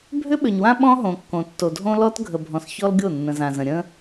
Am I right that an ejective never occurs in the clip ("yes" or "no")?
yes